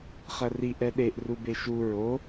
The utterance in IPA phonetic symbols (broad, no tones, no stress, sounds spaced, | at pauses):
χ ɐ r i ʔ ɛ ɗ e ʔ r u b e ʃ u ɹ o